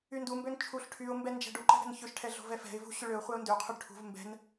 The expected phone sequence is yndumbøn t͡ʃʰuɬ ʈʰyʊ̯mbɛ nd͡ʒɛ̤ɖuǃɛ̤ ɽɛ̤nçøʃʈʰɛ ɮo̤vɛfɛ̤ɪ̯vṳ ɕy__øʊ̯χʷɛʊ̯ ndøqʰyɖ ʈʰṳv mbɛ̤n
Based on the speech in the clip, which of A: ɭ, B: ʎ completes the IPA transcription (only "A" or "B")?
A